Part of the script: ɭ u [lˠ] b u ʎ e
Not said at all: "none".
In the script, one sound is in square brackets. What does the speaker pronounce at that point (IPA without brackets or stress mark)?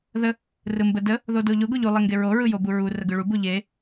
none